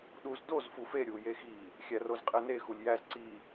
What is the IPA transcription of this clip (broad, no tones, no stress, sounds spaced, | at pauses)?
ɗ u z d o z f u f e ɾʲ u j e x i | xʲ æ r o z qʼ e n e x u lʲ j æ z ǀ i